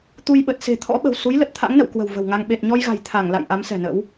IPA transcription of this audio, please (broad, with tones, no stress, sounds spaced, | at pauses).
t̪ u˧ j ɓ ə˨˩ t̚ s e̤˨˩ t̪ʰ ɔ̰˧˥ ɓ ə̤˨˩ w s u˨˦ j l ə˨˩ t̚ t̪ʰ a̰˧˥ ŋ n ə̰˧˨ w k w ə̤˨˩ w v ə̤˨˩ w ŋ a˧ ŋ ɓ e˨˩ t̚ ɲ ɔ˧ j ɣ a̤˨˩ j t̪ʰ a˧˩ ŋ l a̰˧˨ j ʔ a˨˦ m s ɛ̤˨˩ n ə̰˧˥ w